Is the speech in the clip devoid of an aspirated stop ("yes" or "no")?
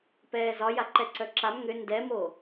yes